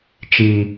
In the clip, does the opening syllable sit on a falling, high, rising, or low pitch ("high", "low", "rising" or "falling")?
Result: high